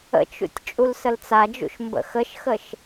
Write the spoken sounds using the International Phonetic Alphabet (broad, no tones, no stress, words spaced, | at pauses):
ə̰t͡ʃṵtʲ t͡ʃʼulsəlt͡sad͡ʒṵʃ mbə̰xəʃxəʃ